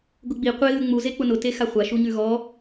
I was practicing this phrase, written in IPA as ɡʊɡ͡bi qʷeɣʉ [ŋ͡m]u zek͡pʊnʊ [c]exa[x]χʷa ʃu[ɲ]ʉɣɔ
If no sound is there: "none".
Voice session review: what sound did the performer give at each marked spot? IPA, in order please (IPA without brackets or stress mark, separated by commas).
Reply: ŋ͡m, t, none, ɲ